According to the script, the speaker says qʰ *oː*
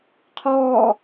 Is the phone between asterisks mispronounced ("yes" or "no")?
yes